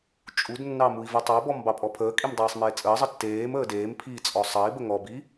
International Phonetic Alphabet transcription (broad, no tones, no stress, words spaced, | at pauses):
t͡ʃʼudnːɑ mui̯vutˤɑbɔm bɑpʼɔpʰəːkʼim dˤeːsˤmeːt͡sʼəːzˤə tːeːm əːdeːmpʰiː t͡sʼɔsˤɑi̯bə ŋɔbi